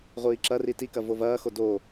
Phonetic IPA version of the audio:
ʁʷ iː ǁ ɐ r i t i k ɐ v o v ɐː x o d o

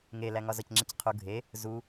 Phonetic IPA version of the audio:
ŋ e l æ ŋ ɒ z ɒ c ŋ͡ǁ i c qʰ u ɡʱ e | z u

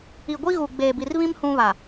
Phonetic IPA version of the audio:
i˨ ɡʷ i˦ ɣ u˨ ɡ͡b eː˨ b i˨ r β ĩ˦ m h ũ˦ β a˨

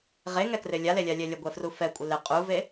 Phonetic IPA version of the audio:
ʁ e ŋ ɛ k r ɪ lʲ a l e lʲ a lʲ ɛ lʲ ə ɡʷ ɛ f r u f ɛ kʷʼ ə l ɪ qʼ u v e

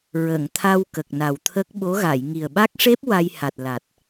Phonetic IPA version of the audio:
ɹ ə˨˩˨ ŋ t̪ʰ a˧ w k ə˨˩ k̚ n a˨˩ w t̪ʰ ə˦˥ k̚ ɓ o˧˥ ɣ a˨˩˨ j ŋ i˨˩ ə̯ ɓ a˦˥ k̚ ʂ e˦˥ p̚ w a˧ j h a˨˩ t̚ l a˨˩ t̚

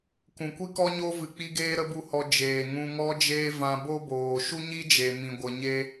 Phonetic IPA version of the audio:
k ũ˨ kʷ i˦ k ɔ˦ ɲ o˦ v ɨ˧ k͡p i˦ ɡ eː˦ ɾ ə˦ b u˦ h ɔ˧ d͡ʒ eː˨ ŋ ũ˧ ŋ ɔ˦ d͡ʒ eː˦ v ã˧ b o˦ b oː˨ ʃ u˦ ɲ i˦ d͡ʒ e˨ m ĩ˧ ɡʷ ə˧ ɲ e˦

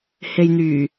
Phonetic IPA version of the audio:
h e˨ j n̪ yː˨˩

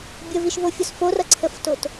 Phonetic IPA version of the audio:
bʲ ə v i ʃ v o fʲ o s f o r ʌ ǀʰ ə f t o t

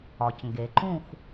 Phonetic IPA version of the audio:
ɒ˩ c ŋ ɡ e˩ ǃ ũ˥˨ x

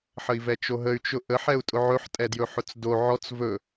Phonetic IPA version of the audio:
ħ ə i̯ v ɛ t͡ʃ o ɦ ə y̯ t͡ʃ ʊ ʔ ə ħ ɛ u̯ tʼ ʊ ʕ ɵ ħ tʼ ɛ d j ɵ ħ ʊ t͡s d o ʕ ɔ t͡s v ɵ

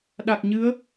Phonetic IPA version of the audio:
ɗ a˨˩ k̚ ɲ ɨ˨˦ ə̯

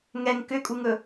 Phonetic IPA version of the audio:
ŋ ɛ ŋ k ʏ kʼ u ŋ ɵ

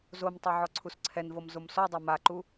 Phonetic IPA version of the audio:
z o m tˤ o ʕ ɔ ǀʰ u s ǀʰ ɛ n v ɤ m z o m s ɔ dˤ ɤ m a ǃ u

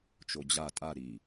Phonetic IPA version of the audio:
t͡ʃ o d͡ʑ a tʼ a ɾ i

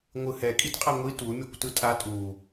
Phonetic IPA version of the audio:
ŋʷ ɯ h ɛ kʼ i t qʼ a ŋʷ i t u mʲ ʌ kʷ t ɯ tʼ a tʼ u

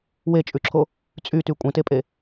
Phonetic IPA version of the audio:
w e t͡ʃʼ ʉ ǁʰ o | t͡sʼ y t y kʷʼ ẽ t e pʼ e

